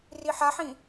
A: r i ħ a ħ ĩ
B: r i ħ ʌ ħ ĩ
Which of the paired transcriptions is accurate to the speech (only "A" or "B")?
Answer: A